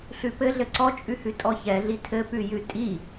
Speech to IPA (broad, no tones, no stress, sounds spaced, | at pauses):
ɬ ʉ p ɘ ɮ ɘ ǀ ɔ t͡ʃʼ ʉ h ʉ tʼ ɔ ç ɛ ɮ i tʰ ɘ p ʉ j ʉ tʼ i